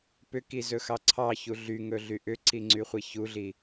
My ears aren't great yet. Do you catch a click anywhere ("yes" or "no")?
yes